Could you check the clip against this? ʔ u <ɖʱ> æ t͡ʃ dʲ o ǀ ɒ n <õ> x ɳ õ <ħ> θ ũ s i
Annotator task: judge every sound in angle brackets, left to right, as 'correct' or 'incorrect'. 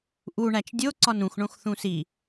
incorrect: ɳ, incorrect: ũ, incorrect: x

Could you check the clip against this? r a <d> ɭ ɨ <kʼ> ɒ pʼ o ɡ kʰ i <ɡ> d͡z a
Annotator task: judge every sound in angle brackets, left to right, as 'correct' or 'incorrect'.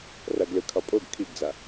incorrect: ɡ, incorrect: kʰ, correct

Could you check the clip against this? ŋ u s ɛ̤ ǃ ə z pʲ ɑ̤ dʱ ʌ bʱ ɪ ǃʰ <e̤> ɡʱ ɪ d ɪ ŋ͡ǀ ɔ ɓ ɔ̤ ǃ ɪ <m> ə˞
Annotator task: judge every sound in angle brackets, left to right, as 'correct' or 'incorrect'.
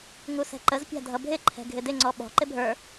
incorrect: ɛ̤, incorrect: bʱ

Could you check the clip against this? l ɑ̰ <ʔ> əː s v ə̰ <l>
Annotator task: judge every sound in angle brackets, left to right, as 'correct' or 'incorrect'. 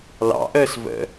correct, incorrect: none

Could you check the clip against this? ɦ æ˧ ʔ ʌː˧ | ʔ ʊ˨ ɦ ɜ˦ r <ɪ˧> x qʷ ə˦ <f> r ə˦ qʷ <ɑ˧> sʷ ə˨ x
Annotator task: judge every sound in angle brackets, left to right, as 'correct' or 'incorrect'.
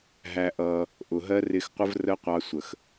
correct, incorrect: v, correct

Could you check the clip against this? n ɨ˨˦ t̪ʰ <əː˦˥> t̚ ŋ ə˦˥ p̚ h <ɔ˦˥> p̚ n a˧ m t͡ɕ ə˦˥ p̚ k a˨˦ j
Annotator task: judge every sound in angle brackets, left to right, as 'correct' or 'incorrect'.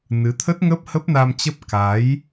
incorrect: ə˦˥, incorrect: ə˦˥

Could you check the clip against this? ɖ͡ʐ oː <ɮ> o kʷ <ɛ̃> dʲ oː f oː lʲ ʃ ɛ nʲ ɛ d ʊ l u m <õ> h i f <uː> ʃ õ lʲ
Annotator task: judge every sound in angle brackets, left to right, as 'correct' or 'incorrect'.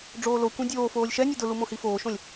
incorrect: l, correct, correct, incorrect: oː

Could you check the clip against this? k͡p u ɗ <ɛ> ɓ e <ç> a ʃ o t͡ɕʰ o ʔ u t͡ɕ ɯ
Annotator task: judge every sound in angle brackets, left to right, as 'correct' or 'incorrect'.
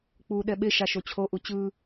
correct, incorrect: ʃ

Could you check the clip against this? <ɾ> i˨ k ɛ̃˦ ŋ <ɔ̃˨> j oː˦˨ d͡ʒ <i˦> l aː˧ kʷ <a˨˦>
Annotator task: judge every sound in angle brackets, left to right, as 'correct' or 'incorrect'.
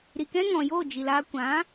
correct, correct, incorrect: i˨, incorrect: ã˨˦

